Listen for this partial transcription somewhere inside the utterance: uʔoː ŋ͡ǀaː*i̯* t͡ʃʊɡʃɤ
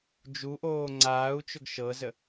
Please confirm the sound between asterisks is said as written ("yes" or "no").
no